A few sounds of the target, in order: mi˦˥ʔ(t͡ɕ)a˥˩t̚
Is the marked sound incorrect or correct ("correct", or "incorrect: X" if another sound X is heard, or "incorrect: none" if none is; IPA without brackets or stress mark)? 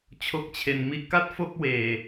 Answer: incorrect: k